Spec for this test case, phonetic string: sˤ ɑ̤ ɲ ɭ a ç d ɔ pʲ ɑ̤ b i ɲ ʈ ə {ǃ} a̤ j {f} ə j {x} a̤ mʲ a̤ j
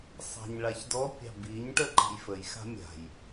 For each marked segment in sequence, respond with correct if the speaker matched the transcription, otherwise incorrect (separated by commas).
correct, correct, correct